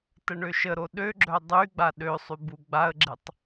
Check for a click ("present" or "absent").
present